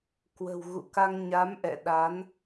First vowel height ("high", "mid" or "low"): mid